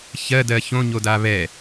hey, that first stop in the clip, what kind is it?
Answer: plain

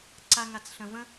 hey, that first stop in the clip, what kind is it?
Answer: click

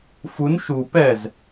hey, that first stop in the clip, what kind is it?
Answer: plain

